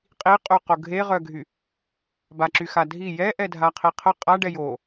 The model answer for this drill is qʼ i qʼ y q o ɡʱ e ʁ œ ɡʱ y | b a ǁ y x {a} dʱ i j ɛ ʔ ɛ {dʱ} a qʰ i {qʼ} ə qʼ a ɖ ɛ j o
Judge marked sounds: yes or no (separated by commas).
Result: yes, yes, no